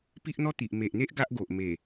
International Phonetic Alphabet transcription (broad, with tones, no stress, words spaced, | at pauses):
pi˦ʔn̪ɔ˦t̪i˨ʔ me˨ʔn̪e˦ʔ ɡa˦ʔɡo˨ʔ me˨˩